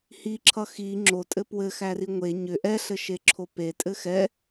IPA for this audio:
h i ǁʰ ʌ x i ŋ͡ǁ o tʼ ɘ p w ɘ x æ r i ŋʷ e ɲ ʏ ʔ ɛ ɬ ɘ ʃ e ǁʰ o p e tʼ ɘ x ɛ

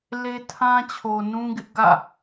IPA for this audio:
l e˦ tʰ ã˦ t͡ɕʰ o˨ n ũ˦ ɡ ɪ˦ ʔ ɡ ä̰˦˨

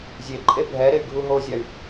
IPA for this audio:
zʲ e ǃʼ e bʱ ɛ ɾ e y̯ ɡʱ u ɦ o zʲ a y̯

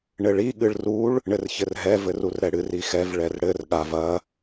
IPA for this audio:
ɳ ɘ ɭ i ɠ ɨ ɭ r u ɭ | ɳ ɘ r ç ɘ r ɦ ɛ v ɘ r u r ɾ ɛ ɽ ɨ r i x ɛ v ɭ ɛ r ɽ ɘ r ɠ a v ɐ

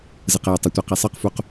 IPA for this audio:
z ɯ q j e tˤ i tʷ ɛ q e sˤ ɯ q f u q

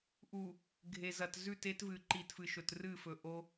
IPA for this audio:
ʔ u˨ | ɡʱ e˨ z ɐ˨ t z ʉ˦˨ t e˦ t v ɨ˨ ǃ i˨ t f ɨ˨ ʃ ɵ˨ t r ɨ˦˨ f ɵ˨ ʔ o˦

